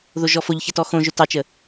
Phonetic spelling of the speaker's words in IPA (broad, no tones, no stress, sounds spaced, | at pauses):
ð o ʒ ɔ f o ʎ ç ə t ɔ x õ ʒ ɵ t ɑ t͡ʃ ə